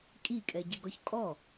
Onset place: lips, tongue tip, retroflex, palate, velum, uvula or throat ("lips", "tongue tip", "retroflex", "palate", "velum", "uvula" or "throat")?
velum